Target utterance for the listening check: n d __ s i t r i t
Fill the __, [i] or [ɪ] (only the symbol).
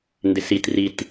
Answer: ɪ